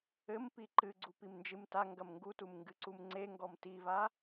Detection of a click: present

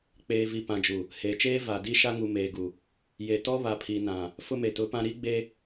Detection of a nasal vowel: present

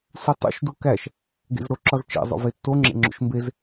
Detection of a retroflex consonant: absent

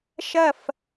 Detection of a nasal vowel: absent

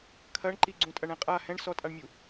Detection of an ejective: present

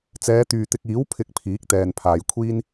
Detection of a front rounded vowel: present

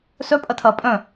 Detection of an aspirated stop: present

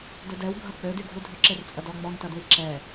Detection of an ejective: present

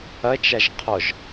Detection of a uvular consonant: present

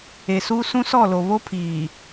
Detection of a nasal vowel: present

